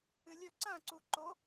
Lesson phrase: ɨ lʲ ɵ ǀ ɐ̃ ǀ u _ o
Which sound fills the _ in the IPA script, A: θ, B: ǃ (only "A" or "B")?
B